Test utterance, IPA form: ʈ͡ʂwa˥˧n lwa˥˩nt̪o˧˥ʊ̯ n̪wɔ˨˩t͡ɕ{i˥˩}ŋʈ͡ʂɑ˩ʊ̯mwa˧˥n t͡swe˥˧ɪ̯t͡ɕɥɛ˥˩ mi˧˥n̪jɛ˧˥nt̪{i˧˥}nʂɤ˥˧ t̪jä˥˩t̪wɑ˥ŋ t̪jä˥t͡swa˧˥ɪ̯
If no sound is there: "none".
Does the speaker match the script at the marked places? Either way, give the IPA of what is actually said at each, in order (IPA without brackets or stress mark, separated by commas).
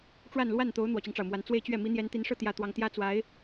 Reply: i˦, i˧˥